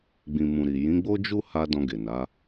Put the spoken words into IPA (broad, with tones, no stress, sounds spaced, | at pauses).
ɡ͡b ĩ˨ m ũ˨ ɾ i˨ j ĩ˨˦ ɡ͡b o˦ d͡ʒ u˦ h a˧ d ɔ̃˧ ɡ e˨ n a˨˦